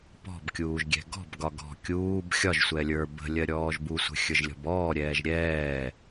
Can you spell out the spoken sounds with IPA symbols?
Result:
p ɔ̤ b kʲ uː ʒ ɡʲ ɛ̤ ɡ ɔ̤ b ɡ ɒ ɡ ɔ̤ kʲ uː b xʲ ɒ ʒ sʷ ɛ lʲ ə˞ b ə̤ lʲ ɜ ɾʲ ɔː ʒ b u sʷ ə̤ xʲ ə˞ ʒ lʲ ɔ̤ b ɔː ɾʲ ɛː ʒ ɾʲ ɛː

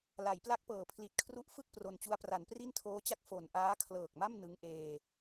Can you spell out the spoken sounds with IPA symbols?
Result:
l a˩˦ j p l a˦˥ k̚ p ɤː˩˦ pʰ l i˨˩ t̚ kʰ r u˦˥ ʔ f ɯ˥˩ k̚ p r o˧ n t͡ɕ u˦˥ a̯ p r a˩˦ n p r i˥˩ n tʰ oː˦˥ t͡ɕ a˥˩ k̚ f o˨˩ n ʔ aː˦˥ kʰ l ɤː˨˩ k̚ m a˥˩ m n ɯ˦˥ ŋ ʔ eː˧

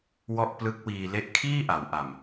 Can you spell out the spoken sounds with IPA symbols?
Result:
w ɔ˥˩ ʔ p l ɯ˦˥ k̚ w iː˧ l e˦˥ ʔ kʰ iː˥˩ ʔ a˩˦ w ʔ a˨˩ m

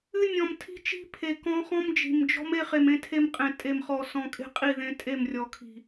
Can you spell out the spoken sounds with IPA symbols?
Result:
ɨ˦ nʲ ɔ̃˨ m tʰ i̤˦ t͡ʃ i̤˦ pʰ e˨ k ɔ̃˦ χ ɔ̃˦ m d͡ʒ i̤˨ m d͡ʒ ɔ̤˦ m e˦ χ e˨ m ẽ˦ tʰ e˦ m qʼ ẽ˨ tʼ e˨ m χ ɔ˨ s ɔ̃˨ kʼ e̤˦ qʼ i˦˨ ð ẽ˨˦ tʼ e˦˨ m rʲ ɔ˨ kʰ i̤˨

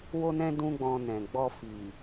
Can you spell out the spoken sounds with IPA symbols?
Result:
w o˦ n ɛ̃˦ d ũ˦ ɡ͡b ɔ̃˧ n ɛ̃˨ ɡ͡b ɔ˧ f i˨

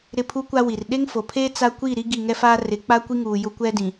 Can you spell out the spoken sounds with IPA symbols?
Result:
ɾ ɪ˦˨ pʰ u˦ kʷ a˦ w i˨ r ɗ e˦ ŋ f o˨ pʰ eː˦ t͡s a˦ kʷ i˦˨ ɾ i˦ ɡ i˦˨ ŋ ɛ˦ f aː˦ r ɪ˨˦ k͡p a˦ kʷ i˦ ŋ uː˨ j ʊ˦ kʷ ɛ˦ d ĩ˨

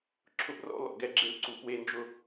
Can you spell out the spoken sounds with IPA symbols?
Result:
ǁʰ ʊ˦ b r ɔ̰˦ l ɔ̰˨ ɡ ɛ˦ ɡ͡ǁ e˦ l ǀ u˨ p w e˦ n d͡ʒ ʊ˦

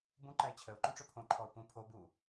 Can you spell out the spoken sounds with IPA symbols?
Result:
b ũ ǃ æ ɪ̯ t͡ɕʰ ə ʊ̯ ǃ õ ʈ͡ʂ ɵ pʰ õ ǃʰ ɔ ʊ̯ p ũ pʰ o b u

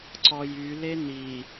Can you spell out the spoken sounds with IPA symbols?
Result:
ǀ ɔ j y l e n̪ i

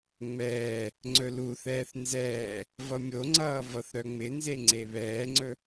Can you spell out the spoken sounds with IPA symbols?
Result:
ŋ͡m ɛː | ŋ͡ǀ ɵ l u θ ɛː θ n z ɛː | v ʌ mʲ o ŋ͡ǀ ʌː v ʌ θ ɾ œ ŋ͡m ɪ n z e ŋ͡ǀ e β ɛː ŋ͡ǀ ɵ

